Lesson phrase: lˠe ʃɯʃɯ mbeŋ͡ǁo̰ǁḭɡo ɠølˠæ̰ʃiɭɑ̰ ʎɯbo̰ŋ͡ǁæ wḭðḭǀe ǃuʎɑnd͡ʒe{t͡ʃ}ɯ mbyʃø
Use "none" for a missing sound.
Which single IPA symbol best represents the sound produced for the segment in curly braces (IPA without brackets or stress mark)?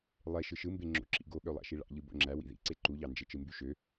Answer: t͡ʃ